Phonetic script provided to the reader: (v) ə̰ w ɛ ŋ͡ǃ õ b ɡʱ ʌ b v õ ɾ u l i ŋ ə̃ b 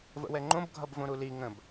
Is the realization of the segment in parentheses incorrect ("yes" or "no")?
no